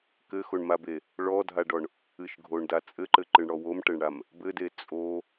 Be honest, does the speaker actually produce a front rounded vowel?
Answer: no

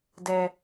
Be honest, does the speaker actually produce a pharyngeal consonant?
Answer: no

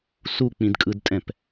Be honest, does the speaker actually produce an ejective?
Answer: yes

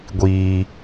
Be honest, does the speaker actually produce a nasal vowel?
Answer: no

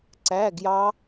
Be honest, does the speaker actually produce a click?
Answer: yes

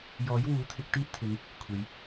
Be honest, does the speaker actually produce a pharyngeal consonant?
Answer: no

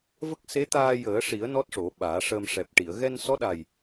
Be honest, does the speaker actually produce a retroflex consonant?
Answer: yes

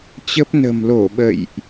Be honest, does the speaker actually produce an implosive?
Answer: yes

